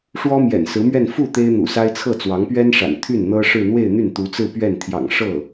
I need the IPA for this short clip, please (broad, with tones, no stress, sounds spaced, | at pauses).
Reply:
ʂ w ɔ˥ m j ɛ̰˨˩ n s ɹ̩˧˥ m ɥ ɛ˥˧ n f u˥˩ t̪ e˥ ɪ̯ n̪ ṵ˨˩ s a˥ ɪ̯ t͡sʰ ɤ˥˩ t͡s w ɑ˧˥ ŋ p ɥ ɛ˥ n ʂ a̰˨˩ n t̪ʰ y˥˩ n n̪ ɤ˥ ʂ ɻ̩˥˧ n̪ w e˥˧ ɪ̯ n̪ y˥˩ n t̪ u˧˥ t͡s ɹ̩˥˧ p ɥ ɛ˥˩ n t̪ʰ j ɑ̰˨˩ ŋ ʂ ɤ˥˩